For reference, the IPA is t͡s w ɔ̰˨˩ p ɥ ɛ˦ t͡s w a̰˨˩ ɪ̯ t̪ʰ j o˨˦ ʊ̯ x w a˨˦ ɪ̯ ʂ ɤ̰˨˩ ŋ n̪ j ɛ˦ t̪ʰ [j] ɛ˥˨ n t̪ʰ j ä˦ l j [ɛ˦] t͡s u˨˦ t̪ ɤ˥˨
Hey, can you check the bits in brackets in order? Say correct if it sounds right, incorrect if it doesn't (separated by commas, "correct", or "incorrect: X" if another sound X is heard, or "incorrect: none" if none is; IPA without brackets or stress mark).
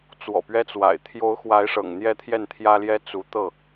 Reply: correct, correct